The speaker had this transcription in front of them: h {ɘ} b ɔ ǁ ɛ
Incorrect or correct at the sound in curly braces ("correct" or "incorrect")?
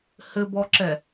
correct